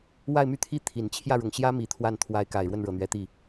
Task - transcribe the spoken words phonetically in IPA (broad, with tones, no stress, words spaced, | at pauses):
wa˥˧ɪ̯my˥˩t̪ʰi˥ t̪ʰi˨˩n t͡ɕʰjä˥˩ɻʊ˨˩ŋɕjä˥ mi˧˥t̪ʰwa˥˩n t̪ʰwa˧˥ɪ̯ka˨˩ɪ̯ ɻwə˥˩nɻɤ˨˩n̪ɥɛ˧˥t̪i˥˩